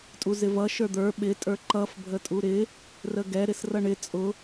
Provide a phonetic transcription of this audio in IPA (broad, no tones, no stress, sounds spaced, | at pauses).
tʼ u z ɪ v ʌ ʃ ə˞ d̪ ə˞ ɓ ɪ tʼ ə˞ ǃ ʌ f bʱ ə tʼ u ɾ ɪ | r ə ɡ ɛ ɾ ɪ s r ʌ ɳ ɪ t͡sʼ ʊ